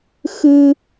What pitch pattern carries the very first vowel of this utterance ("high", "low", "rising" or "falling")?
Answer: high